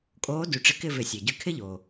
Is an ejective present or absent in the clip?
present